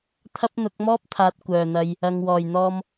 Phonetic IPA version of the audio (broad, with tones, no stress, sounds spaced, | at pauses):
t̪ʰ ɐ˥ p̚ n̪ ʊ˨˥ k̚ m ɔː˥ p̚ t̪ʰ aː˨ t̚ kʷ œː˨˩ n̪ ɐ˨ j | ɐ˨ ŋ w ɔː˨˩ j n̪ ɔː˧ m